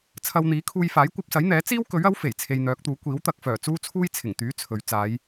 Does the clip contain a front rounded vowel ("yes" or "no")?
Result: yes